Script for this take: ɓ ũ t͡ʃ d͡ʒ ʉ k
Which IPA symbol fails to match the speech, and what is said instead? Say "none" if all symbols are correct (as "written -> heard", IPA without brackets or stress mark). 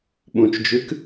none